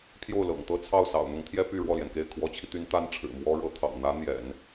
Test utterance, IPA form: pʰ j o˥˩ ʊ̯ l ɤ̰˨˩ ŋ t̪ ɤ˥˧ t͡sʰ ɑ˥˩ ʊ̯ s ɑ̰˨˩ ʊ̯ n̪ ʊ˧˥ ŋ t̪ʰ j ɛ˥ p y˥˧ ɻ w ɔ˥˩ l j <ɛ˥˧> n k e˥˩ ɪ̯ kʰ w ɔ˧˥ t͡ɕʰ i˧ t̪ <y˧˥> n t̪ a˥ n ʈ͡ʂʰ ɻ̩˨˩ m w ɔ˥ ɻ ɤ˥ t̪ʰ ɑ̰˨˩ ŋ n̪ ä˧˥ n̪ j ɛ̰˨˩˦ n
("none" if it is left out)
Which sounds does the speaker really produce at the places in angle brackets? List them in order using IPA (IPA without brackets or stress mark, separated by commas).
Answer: ɛ˩, y˧˥